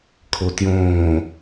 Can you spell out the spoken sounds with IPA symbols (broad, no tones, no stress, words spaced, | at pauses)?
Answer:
kʰotjõː